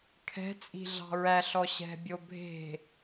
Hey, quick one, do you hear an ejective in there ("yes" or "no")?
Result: yes